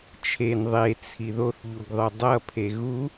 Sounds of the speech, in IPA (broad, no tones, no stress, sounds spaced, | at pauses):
t͡ʃʰ e n ðˤ e t͡sʰ i ð o θ ʎ u ɡ ðˤ ɯ dˤ ʌ pʰ e ɣ u